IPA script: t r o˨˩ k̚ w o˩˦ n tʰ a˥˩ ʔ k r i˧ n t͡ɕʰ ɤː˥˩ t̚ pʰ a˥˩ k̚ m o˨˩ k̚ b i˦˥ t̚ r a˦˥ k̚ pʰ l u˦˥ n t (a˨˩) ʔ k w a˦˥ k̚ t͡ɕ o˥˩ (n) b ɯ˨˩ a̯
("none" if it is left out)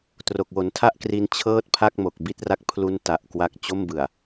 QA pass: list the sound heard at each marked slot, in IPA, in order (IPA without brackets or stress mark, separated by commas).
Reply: a˨˩, m